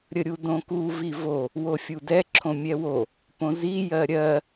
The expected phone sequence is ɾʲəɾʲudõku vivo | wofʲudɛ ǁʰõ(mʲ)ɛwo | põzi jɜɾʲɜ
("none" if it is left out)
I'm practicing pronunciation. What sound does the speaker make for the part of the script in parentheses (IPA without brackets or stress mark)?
mʲ